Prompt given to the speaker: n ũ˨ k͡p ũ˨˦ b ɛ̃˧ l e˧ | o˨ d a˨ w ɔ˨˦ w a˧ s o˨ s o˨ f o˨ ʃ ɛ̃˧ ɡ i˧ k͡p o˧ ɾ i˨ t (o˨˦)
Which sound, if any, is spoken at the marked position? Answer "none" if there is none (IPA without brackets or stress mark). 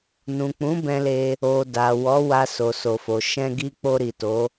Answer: o˨˦